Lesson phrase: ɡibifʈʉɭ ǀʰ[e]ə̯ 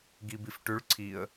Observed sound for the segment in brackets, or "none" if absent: i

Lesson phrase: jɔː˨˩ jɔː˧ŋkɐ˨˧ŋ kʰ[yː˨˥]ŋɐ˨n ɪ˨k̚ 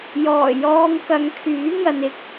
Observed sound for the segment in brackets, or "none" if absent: yː˨˥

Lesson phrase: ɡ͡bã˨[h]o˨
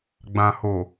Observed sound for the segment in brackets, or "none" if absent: h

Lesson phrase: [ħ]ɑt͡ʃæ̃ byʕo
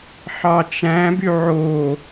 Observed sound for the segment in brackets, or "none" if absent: ħ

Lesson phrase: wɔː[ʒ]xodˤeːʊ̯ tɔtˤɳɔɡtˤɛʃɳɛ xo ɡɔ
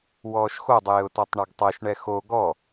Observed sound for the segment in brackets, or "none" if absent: ʃ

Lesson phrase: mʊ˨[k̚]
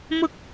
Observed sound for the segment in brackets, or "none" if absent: k̚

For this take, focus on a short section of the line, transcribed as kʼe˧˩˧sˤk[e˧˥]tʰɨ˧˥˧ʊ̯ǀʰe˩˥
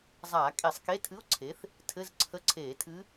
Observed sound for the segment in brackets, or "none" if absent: e˧˥˧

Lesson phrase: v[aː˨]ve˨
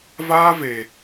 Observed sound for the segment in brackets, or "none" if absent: aː˦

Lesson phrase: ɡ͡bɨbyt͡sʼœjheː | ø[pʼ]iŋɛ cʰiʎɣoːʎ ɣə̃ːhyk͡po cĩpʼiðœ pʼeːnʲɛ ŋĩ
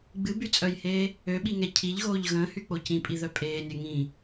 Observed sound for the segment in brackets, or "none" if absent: ɓ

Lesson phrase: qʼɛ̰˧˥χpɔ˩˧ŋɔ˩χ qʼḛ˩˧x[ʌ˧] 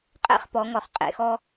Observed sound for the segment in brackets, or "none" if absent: ɔ˧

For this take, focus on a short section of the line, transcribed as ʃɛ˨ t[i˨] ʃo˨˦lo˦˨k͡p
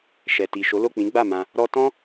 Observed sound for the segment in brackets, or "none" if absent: i˨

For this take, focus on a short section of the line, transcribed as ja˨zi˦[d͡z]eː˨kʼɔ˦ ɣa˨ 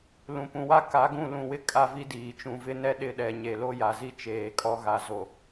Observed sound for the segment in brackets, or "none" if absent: t͡ʃ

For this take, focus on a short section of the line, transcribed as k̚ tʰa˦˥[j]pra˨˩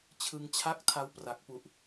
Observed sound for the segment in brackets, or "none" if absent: w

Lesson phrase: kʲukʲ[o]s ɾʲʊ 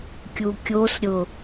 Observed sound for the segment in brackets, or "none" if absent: o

